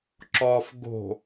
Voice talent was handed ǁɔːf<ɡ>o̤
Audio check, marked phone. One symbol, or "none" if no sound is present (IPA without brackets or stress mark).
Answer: ɡ